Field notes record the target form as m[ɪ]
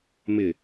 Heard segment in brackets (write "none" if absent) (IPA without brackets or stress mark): ɪ